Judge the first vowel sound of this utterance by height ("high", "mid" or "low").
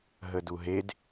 mid